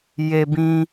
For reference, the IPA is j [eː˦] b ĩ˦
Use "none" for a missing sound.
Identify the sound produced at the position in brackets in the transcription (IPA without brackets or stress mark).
e˦